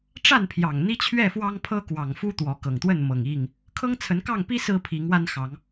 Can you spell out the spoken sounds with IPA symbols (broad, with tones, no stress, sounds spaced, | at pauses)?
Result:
ʈ͡ʂ a˥˨ n pʰ j ɑ˨˩ ŋ n̪ i˦ t͡ɕʰ ɥ ɛ˥˨ f w ɑ˦ ŋ pʰ ɤ˦ k w ɑ˨˩ ŋ f u˦ t̪ w ɔ˨˦ k ɤ˨˩ ŋ t̪ w ə˥˨ n m ɤ˨˩ ŋ i˥˨ ŋ | kʰ ɤ˦ ŋ t͡sʰ ə˨˦ n k ɑ˥˨ ŋ p i˦ s ɹ̩˦ pʰ i˨˦ ŋ w a˦ n x ɑ˨˦ ŋ